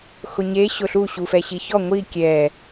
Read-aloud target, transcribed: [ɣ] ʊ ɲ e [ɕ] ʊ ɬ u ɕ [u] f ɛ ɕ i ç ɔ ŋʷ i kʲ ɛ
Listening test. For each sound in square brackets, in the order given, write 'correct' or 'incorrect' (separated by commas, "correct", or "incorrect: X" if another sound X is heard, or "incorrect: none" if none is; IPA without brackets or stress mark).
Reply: incorrect: x, correct, correct